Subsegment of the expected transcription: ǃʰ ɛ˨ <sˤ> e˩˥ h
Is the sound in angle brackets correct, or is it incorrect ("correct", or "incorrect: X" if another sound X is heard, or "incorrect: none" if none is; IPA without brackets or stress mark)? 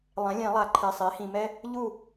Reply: correct